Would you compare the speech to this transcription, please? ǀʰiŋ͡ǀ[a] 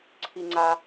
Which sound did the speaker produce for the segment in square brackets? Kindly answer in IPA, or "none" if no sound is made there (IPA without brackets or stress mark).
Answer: a